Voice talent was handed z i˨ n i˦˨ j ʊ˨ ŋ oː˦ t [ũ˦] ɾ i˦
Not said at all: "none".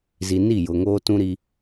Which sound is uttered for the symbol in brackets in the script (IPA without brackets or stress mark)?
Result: ũ˦